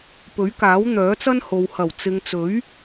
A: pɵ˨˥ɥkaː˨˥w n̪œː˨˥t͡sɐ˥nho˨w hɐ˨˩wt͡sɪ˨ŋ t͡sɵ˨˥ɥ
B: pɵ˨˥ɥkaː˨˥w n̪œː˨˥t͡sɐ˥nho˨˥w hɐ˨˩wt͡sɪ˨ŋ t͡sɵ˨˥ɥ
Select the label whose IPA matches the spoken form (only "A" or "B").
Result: A